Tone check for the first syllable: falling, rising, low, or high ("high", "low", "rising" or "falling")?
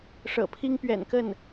low